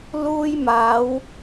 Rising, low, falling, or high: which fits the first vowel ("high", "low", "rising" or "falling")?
high